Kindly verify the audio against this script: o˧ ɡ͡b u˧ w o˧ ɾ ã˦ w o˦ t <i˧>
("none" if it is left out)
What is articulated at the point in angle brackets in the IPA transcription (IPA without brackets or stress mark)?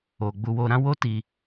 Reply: i˧